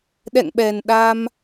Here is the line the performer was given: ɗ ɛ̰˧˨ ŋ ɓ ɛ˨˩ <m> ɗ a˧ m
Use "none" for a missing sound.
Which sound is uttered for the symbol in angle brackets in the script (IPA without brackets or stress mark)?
n